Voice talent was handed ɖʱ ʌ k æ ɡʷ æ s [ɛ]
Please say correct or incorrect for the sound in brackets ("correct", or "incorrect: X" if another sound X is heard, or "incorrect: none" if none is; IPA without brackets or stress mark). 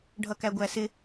incorrect: ɪ